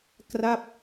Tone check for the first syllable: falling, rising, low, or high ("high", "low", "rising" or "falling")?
falling